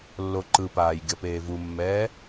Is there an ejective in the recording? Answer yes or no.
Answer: no